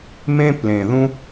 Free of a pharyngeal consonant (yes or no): yes